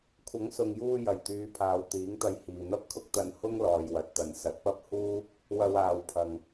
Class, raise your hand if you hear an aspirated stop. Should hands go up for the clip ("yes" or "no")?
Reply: yes